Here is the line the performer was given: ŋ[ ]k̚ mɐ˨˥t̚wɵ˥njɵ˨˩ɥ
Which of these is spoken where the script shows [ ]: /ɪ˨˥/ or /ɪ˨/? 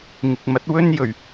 ɪ˨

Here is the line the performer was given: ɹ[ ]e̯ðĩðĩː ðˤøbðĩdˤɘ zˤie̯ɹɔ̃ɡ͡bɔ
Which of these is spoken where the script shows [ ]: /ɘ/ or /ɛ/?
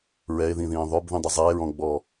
ɛ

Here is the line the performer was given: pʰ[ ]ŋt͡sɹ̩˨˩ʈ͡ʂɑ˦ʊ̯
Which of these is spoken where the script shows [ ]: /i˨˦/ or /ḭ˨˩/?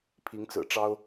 i˨˦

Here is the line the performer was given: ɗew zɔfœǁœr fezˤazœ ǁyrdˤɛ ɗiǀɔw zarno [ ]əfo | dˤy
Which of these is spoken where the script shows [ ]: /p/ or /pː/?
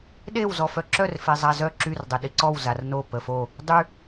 p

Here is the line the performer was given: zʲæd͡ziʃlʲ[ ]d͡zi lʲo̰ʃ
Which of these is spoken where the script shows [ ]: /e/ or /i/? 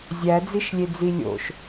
e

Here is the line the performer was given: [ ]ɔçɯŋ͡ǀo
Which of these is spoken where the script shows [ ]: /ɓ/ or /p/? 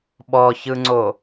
ɓ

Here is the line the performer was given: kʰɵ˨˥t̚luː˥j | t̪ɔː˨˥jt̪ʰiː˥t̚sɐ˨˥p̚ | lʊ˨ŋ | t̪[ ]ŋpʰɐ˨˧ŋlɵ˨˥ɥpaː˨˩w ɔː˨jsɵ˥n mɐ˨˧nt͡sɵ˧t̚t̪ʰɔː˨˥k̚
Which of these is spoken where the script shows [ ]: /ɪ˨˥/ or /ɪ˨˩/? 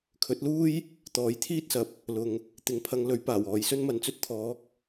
ɪ˨˥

